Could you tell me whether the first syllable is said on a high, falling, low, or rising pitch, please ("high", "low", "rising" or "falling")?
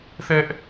high